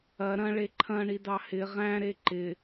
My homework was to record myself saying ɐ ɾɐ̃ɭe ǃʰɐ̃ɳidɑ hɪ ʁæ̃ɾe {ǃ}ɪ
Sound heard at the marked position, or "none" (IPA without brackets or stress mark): ǃ